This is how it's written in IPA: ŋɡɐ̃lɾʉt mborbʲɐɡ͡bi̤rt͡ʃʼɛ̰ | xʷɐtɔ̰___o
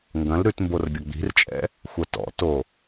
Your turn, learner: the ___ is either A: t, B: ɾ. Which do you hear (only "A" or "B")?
A